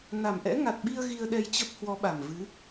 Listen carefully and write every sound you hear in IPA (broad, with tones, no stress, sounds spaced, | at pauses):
n a˨˩ m ʔ ɛ̰˧˥ ŋ a˨˩ t̚ ɓ i˧ ə̯ ɣ i˧ ə̯ ɗ ɛ˧ j t͡ɕ ə˦˥ p̚ h w ɔ˨˦ ɓ a˨˩ m v ɨ˨˦